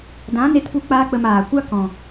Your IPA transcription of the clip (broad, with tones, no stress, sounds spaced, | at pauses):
d ã˨˦ n e˧ t p u˧ k͡p aː˦ k͡p ə˧ m aː˨ kʷ a˦ k ɔ̃˨